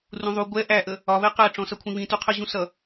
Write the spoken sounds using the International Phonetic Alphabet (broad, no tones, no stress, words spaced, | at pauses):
rũðˤu ɡʷɛ ʔæʔə | ɒβɛ qæ ʈ͡ʂɔ̃sʌkʷʰĩβĩ tuqʰə ʑũsʌ